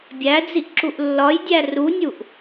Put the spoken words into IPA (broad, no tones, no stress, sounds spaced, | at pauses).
bʲ æ d͡z i ʔ ǁ u ʔ lː ɒ j dʲ æ r u nʲ u ʔ